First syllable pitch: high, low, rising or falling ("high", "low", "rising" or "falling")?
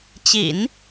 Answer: low